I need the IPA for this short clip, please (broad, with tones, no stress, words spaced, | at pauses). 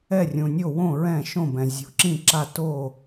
ɛ˧˩rʲũ˩nʲo˧˩wõ˧˩ ɹɛ̃˧˩ʃõ˧˩bɛ̃˩ zʲo̤˩ǁĩ˧˩ ǁa˧˩ to˧˩